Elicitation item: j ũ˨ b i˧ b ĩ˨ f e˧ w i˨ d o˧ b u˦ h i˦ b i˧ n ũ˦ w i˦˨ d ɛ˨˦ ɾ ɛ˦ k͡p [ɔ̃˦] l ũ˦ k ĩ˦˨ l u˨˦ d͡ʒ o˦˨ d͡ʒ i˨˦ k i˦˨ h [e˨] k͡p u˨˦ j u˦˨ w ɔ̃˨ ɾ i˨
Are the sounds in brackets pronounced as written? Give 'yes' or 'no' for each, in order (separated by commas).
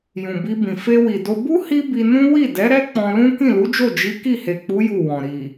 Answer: no, yes